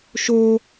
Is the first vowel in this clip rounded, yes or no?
yes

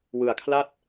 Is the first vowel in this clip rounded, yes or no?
no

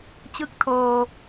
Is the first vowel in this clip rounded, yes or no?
no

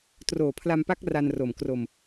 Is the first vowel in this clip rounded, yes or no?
yes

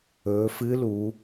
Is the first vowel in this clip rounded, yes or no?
yes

